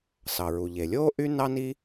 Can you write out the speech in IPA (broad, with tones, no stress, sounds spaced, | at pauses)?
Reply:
s ɑ˩ ɹ u˩ ʎ e˩ lʲ oː˥ ʔ y˥ n ɑ˥ n i˥